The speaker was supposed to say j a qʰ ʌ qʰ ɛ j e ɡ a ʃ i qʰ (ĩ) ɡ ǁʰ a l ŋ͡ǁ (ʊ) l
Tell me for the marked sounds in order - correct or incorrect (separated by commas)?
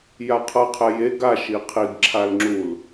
incorrect, incorrect